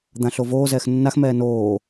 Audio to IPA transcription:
d̪ ã ɬ o v oː z ɛː x nː a x m ɛː n oː

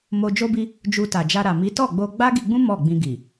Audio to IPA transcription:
m o˧ d͡ʒ o˧ b i˧ | d͡ʒ u˧ t a˨ d͡ʒ a˧ ɾ a˨ m i˨˦ t ɔ˦˨ ɡ͡b o˧ ɡ͡b a˦ ɡ i˧ ɡ͡b ũ˦ m ɔ˦˨ ɡ͡b ĩ˧ ɡ i˨

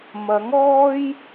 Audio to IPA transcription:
m ɐ˨˥ ŋ ɔː˥ j

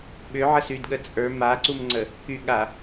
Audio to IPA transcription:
ɓ ʏ ʕ ə s y d ɠ ə t͡sʼ ə˞ m a ǀ u m ŋ͡ǀ ə | k y ɠ a

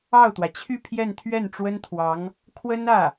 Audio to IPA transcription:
ɑ˥˩ ʊ̯ t̪ w ä˩ t͡ɕʰ y˥˧ pʰ j ɛ˥˧ n t̪ʰ ɥ ɛ˥˩ n ʈ͡ʂ w ə˥ n t̪ʰ w ɑ˧˥ ŋ | kʰ w ə˥ n ä˥˩

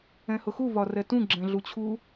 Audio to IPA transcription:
ɛ̃ h ʊ x u v ɒ r ɛ t ũ ɡ͡ǁ ɛ̃ ɮ u t͡ɕʰ u

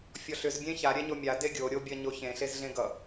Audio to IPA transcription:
fʲ ɔ ɬ ʏ z bʲ ẽ ç a ɾʲ ɛ ɲ o mʲ a d e ɡʲ o ɾʲ o bʲ ɐ ɲ o ç ẽ ɬ e z ɮ ẽ ɡ ʌ

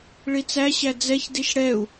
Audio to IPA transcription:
ɭ i t͡s æ ɕ æ d͡z ɛ ç d i ʃ ɽ ɛ u̯

